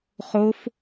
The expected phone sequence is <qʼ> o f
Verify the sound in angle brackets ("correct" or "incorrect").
incorrect